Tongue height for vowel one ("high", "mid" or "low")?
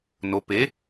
mid